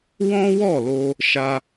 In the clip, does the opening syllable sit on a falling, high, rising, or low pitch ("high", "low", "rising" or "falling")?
high